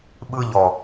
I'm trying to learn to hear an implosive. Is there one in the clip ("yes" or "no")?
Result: yes